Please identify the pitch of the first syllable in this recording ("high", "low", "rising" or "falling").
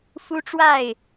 high